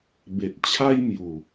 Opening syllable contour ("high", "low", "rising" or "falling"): low